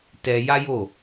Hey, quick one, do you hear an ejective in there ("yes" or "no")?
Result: no